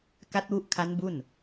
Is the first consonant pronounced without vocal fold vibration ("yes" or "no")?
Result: yes